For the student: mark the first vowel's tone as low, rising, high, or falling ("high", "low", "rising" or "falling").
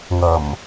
low